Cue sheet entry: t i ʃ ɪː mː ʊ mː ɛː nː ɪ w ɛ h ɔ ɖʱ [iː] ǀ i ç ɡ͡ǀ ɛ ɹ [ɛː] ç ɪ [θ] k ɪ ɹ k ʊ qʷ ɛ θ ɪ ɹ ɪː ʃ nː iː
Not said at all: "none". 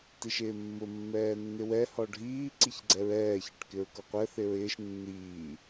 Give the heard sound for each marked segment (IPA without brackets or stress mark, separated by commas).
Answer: iː, ɛː, ʈ